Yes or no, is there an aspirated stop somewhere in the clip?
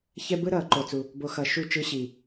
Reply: no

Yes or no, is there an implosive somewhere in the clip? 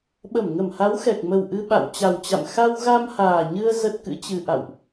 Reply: yes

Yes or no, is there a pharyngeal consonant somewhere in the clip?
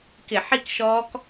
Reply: yes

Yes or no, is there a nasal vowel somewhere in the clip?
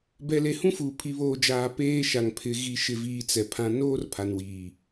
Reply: yes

